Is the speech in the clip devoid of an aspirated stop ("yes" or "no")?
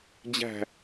yes